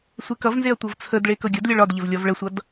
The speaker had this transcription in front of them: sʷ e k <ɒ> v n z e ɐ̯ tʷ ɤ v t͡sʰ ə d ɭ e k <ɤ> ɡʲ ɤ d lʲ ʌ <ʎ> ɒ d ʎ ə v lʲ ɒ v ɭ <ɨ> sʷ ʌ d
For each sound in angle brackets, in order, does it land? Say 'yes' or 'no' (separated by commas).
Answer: no, yes, no, no